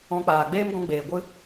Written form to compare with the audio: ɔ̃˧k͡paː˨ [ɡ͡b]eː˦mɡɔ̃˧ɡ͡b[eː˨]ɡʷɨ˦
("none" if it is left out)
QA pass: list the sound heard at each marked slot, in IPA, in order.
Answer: ɡ͡b, eː˨

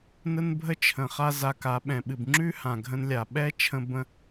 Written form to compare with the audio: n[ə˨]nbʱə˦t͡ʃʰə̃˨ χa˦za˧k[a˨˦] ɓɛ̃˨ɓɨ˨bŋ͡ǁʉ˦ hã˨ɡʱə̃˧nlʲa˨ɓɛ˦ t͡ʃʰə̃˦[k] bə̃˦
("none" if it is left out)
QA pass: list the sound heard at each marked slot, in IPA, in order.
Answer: ə˦, a˨˦, none

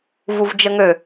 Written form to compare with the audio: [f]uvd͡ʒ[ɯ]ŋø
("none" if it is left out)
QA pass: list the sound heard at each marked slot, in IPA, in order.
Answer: v, ə

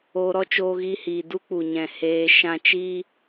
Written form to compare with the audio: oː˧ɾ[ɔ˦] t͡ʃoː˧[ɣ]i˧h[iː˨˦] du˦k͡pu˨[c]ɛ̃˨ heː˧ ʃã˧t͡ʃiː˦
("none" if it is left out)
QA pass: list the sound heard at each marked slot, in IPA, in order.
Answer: ɔ˦, ɣ, iː˨, ɲ

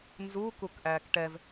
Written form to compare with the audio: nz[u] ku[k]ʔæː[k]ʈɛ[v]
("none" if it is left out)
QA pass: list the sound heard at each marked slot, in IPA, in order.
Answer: u, k, k, v

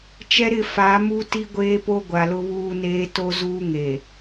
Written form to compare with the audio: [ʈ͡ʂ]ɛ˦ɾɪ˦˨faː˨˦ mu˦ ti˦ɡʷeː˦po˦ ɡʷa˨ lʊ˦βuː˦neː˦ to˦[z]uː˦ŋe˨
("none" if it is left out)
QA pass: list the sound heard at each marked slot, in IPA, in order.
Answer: t͡ʃ, z

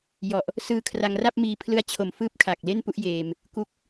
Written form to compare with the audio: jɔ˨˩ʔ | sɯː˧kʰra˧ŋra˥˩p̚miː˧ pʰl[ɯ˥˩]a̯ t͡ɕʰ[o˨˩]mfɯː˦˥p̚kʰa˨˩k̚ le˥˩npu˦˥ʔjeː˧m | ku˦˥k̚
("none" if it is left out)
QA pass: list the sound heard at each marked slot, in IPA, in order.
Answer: ɯ˧, o˨˩

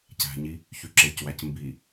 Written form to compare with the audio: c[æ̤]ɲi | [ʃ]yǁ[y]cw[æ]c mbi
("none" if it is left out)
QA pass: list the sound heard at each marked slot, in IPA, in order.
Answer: æ̤, ç, e, æ

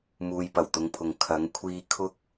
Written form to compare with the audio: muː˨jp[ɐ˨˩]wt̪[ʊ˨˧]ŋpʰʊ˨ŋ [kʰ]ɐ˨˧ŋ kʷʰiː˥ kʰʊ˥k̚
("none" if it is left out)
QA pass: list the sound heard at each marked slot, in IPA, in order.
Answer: ɐ˨˩, ʊ˨˧, kʰ

